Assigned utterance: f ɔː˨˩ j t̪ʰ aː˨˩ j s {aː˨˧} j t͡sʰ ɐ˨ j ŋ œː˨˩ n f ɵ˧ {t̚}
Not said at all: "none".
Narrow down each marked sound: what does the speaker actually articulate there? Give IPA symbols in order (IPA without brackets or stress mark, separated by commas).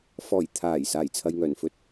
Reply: aː˨˩, t̚